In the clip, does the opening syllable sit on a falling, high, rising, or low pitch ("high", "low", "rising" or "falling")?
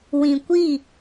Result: low